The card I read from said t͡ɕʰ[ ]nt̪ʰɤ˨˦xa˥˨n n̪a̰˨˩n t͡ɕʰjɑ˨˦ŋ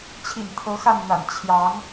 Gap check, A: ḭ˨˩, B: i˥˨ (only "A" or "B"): A